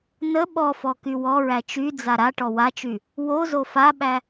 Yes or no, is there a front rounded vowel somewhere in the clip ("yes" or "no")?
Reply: yes